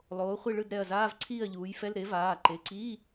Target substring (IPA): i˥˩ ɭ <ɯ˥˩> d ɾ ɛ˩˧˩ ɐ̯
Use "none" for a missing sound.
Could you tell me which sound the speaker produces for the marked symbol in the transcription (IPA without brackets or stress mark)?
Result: ɯ˥˩